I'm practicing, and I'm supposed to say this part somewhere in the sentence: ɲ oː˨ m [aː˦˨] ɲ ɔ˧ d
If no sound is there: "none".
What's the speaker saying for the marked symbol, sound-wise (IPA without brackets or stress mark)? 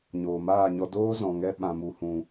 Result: aː˦˨